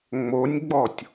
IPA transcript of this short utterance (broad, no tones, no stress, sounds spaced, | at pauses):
ŋ͡m o nʲ ɡ͡b ɔ tʲ